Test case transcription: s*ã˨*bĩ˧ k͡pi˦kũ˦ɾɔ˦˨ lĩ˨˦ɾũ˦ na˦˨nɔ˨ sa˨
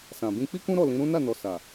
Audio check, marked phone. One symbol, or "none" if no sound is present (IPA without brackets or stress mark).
ã˨